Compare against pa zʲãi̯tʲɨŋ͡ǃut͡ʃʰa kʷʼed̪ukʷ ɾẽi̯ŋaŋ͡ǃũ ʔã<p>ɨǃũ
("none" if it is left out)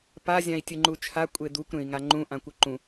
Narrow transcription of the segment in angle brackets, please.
kʷ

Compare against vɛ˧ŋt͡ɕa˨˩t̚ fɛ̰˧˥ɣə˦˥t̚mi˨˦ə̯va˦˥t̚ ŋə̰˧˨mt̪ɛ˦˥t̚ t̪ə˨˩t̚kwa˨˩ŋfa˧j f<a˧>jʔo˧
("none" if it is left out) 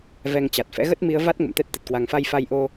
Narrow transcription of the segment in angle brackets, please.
a˧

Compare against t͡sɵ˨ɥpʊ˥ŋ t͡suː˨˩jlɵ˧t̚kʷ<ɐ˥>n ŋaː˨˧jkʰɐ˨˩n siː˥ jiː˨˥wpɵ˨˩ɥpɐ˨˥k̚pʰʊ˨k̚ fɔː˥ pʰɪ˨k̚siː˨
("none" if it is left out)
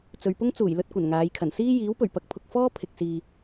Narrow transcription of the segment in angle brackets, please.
ɐ˨˩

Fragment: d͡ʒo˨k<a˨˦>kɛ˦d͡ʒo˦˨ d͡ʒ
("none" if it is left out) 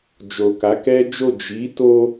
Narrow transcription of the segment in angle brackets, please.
a˨˦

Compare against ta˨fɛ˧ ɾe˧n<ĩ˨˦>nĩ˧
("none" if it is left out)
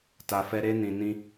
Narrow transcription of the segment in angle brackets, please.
ĩ˨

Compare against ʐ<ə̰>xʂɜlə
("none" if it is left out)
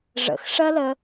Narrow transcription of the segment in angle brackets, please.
ə̰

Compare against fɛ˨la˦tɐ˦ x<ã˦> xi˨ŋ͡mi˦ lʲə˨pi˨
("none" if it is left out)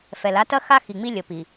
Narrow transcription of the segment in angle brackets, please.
a˦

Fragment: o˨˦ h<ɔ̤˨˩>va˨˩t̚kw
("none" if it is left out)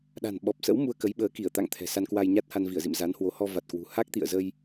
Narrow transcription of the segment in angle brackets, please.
ɔ˧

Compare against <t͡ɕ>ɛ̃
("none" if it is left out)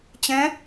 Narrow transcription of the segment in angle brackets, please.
t͡ɕ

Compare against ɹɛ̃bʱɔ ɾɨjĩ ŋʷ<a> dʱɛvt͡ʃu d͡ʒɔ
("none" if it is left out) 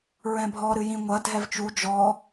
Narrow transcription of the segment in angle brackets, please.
ɐ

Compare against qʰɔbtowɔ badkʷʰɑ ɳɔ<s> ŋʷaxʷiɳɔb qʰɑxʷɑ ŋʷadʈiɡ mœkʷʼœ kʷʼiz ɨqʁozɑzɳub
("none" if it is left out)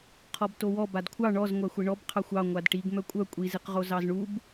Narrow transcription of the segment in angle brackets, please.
z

